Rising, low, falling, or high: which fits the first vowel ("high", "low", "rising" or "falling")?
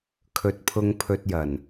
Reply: low